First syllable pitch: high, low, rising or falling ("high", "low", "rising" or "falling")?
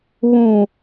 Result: low